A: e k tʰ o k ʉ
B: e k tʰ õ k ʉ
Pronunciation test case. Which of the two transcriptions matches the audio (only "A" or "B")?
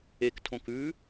B